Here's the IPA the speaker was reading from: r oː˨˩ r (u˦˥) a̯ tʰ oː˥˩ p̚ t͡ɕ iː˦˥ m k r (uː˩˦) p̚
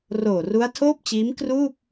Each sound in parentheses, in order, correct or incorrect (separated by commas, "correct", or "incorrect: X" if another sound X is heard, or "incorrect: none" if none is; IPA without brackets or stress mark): correct, incorrect: uː˥˩